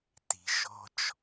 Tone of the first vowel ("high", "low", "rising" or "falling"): low